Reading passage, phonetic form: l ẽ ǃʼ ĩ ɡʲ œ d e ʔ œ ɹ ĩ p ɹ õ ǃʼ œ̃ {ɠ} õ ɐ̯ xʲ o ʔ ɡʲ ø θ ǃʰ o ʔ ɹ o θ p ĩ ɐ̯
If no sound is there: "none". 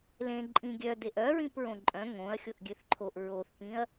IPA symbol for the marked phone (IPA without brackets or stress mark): ŋ